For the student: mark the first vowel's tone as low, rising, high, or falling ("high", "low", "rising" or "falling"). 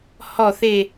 falling